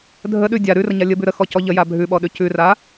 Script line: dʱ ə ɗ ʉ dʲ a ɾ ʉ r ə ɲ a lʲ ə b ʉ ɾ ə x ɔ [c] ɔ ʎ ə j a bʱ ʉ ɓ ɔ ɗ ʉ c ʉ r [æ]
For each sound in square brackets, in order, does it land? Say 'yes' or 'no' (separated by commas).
yes, no